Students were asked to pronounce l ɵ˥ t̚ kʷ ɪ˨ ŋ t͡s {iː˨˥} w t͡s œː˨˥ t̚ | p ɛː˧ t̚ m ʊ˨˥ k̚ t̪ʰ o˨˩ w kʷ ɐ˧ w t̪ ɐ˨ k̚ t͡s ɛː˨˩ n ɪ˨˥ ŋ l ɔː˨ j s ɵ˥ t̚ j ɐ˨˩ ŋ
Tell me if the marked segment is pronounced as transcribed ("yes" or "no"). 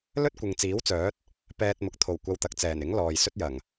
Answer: yes